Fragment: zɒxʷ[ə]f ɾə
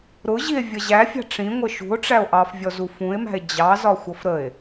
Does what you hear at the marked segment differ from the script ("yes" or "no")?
yes